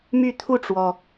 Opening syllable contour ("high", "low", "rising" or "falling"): falling